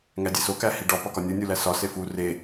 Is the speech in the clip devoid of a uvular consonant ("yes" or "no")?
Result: yes